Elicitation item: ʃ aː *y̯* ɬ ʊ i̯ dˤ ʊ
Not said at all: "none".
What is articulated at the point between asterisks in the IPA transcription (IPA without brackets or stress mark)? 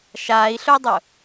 i̯